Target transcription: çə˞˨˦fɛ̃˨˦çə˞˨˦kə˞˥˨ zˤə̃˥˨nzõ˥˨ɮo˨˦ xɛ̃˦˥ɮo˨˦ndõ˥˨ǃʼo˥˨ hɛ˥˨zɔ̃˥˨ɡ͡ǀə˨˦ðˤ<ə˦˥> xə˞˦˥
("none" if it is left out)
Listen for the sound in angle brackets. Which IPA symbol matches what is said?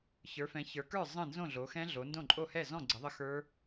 ə˦˥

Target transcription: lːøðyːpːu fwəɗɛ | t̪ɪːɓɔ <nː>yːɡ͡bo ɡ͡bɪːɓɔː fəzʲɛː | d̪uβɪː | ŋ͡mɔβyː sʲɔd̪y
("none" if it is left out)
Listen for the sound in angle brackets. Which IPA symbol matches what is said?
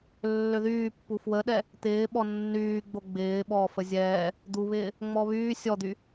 nː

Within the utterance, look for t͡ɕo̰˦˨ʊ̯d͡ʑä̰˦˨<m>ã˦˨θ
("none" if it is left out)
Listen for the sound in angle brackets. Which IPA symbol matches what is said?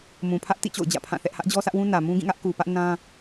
pʰ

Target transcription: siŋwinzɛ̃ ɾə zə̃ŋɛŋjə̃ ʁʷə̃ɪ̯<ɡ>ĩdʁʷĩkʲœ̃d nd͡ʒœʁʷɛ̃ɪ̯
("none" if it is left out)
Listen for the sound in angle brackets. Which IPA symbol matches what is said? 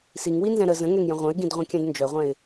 ɡ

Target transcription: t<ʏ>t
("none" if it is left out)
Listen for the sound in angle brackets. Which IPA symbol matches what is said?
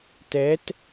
ɛ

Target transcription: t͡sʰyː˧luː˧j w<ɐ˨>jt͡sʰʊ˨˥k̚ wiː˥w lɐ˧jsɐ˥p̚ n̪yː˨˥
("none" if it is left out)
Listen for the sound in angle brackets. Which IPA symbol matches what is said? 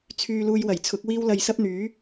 ɐ˨˩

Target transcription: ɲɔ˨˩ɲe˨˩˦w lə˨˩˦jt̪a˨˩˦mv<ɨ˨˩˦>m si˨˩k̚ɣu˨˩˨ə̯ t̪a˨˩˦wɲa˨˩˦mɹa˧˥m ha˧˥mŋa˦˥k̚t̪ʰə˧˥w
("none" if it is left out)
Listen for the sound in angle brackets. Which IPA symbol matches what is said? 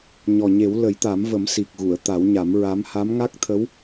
ə˨˩˦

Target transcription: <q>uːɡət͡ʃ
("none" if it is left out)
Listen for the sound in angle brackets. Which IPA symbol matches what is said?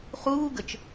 χ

